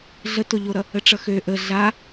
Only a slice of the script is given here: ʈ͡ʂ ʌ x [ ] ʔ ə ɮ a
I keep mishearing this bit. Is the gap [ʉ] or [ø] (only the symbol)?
ø